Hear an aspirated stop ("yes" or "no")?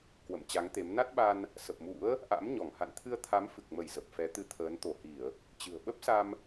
yes